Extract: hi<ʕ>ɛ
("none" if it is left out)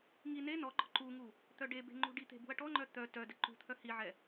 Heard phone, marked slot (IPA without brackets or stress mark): ʕ